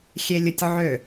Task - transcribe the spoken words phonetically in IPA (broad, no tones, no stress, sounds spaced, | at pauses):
xʲ e lʲ ʊ tʲ ʕ ø